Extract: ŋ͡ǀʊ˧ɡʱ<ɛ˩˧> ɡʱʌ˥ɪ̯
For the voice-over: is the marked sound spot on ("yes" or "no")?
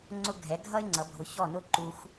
yes